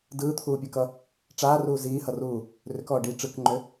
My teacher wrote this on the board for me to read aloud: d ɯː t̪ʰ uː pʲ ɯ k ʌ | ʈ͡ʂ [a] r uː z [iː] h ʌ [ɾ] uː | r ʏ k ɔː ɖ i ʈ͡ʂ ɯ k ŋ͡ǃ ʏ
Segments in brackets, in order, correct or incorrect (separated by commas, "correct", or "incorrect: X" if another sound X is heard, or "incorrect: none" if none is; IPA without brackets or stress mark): incorrect: aː, correct, incorrect: r